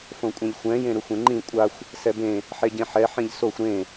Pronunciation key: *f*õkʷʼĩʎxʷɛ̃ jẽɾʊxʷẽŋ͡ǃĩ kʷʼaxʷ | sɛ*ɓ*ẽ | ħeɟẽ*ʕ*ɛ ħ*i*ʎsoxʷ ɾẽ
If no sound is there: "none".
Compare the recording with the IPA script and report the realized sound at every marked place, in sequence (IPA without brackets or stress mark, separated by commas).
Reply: f, b, ħ, ĩ